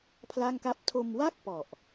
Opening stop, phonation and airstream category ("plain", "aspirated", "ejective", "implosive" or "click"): aspirated